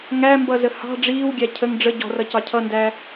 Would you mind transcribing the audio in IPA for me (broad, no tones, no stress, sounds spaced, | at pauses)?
ŋ æ m b ʌ z ə h ɑ̤ ɖ͡ʐ iː w ɡʲ æ cʰ ə ŋ ɖ͡ʐ ə ɟ ɔ̤ r ʌ c ɑ cʰ ʌ n d æ